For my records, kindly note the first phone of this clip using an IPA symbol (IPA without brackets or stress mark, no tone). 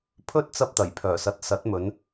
pʰ